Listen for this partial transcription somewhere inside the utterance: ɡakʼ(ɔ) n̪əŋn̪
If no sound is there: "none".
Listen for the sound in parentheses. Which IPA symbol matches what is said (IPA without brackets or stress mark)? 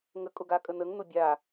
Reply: ə